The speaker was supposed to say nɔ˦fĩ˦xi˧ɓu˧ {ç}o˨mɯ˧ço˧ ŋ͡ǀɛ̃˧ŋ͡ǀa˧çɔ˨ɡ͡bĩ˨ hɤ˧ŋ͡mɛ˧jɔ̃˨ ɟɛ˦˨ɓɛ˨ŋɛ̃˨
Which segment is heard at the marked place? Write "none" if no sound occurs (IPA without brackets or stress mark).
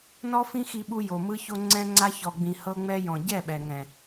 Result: j